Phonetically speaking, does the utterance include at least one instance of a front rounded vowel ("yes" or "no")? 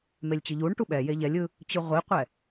no